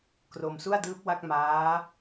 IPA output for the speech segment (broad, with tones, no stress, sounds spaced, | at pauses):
k r o˧ m s u˥˩ a̯ d ɯː˦˥ p̚ w a˥˩ k̚ m aː˦˥